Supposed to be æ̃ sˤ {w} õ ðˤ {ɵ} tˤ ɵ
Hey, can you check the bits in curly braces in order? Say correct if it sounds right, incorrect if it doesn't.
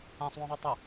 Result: correct, incorrect: ø

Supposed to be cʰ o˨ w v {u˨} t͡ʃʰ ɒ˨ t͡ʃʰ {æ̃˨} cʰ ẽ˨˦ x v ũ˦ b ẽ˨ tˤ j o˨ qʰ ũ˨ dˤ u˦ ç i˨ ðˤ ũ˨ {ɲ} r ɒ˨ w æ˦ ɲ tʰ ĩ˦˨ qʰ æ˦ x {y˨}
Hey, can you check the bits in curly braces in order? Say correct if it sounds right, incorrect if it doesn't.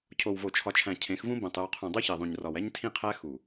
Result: incorrect: o˨, correct, correct, incorrect: u˨

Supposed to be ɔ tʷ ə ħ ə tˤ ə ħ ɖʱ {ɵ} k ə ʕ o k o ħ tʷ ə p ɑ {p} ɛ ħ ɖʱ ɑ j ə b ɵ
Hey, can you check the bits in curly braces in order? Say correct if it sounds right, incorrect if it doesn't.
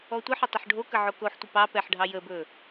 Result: incorrect: o, correct

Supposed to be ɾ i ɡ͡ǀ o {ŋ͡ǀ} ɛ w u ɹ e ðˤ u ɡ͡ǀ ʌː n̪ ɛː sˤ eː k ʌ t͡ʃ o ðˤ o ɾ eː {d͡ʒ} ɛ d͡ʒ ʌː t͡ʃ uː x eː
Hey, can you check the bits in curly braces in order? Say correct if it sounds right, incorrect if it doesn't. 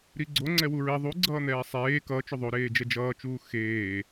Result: correct, correct

